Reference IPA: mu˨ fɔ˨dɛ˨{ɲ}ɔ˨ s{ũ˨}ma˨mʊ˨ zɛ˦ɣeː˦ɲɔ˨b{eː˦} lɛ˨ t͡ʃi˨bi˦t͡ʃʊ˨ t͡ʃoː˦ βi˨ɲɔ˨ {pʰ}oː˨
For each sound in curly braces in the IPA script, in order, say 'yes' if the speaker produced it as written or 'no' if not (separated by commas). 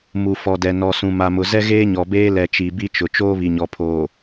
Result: no, yes, yes, yes